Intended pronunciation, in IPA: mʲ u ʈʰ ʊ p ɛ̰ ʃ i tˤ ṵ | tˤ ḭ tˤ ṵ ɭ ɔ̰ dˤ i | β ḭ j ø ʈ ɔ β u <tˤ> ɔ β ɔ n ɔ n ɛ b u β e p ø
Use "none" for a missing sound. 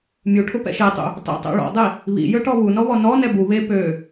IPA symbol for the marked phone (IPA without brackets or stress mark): n